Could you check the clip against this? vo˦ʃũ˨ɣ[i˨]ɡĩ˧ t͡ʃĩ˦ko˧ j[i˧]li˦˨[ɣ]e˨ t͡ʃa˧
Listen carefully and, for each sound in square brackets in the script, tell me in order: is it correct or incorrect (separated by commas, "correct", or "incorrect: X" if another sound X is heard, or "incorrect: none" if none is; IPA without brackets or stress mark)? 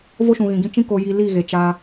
incorrect: ĩ˨, correct, correct